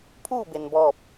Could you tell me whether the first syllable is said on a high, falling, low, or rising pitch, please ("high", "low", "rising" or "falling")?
falling